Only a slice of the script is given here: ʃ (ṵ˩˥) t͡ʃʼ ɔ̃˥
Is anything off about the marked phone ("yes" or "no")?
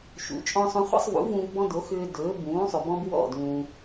no